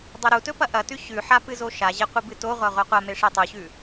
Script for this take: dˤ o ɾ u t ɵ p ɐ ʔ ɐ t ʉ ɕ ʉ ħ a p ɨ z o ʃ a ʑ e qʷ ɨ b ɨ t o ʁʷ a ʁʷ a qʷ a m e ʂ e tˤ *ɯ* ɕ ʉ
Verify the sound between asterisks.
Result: incorrect: u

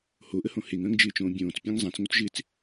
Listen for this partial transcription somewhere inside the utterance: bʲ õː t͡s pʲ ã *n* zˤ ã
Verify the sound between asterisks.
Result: incorrect: ŋ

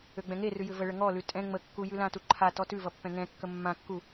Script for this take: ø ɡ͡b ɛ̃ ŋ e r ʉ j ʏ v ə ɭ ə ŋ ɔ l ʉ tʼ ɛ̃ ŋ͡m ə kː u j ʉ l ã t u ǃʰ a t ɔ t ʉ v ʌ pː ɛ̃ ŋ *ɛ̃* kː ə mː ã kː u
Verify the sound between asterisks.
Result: correct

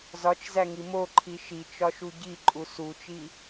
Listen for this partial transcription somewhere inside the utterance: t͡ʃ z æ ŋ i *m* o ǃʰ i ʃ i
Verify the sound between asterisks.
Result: correct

